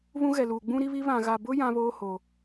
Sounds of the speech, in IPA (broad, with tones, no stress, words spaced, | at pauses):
βũ˦ɣɛ˨luː˨ ɡ͡bũ˦ɾi˦βi˦ βã˨ɣa˨bʊ˦ jã˦βoː˦ ho˨